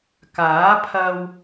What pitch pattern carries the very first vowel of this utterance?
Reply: rising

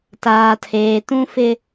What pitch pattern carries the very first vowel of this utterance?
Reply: low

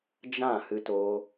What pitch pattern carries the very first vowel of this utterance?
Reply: falling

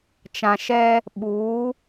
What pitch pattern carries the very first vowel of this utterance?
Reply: low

